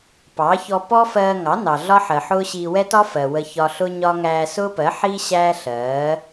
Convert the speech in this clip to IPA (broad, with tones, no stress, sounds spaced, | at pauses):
p ɑ˨˦ ç ɔ˧ p ɔ˦ f ɜː˧ ŋ ɑ˨˦ n ɑ˨ ɮ ɒ˦ ħ ɜ˨ ħ ʊː˦ ɕ iː˧ w ɛ˦ t ɒ˦ f ɜ˨ w ə˧ ç ɒ˧ ɬ ʊ˦ ɲ ɒ˦ ŋ æː˧ s ʊː˦ p ɜ˨˦ ħ iː˦ ɕ æː˦ ɬ ɜː˨˦